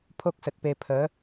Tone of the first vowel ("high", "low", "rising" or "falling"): high